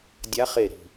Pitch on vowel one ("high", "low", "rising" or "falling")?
rising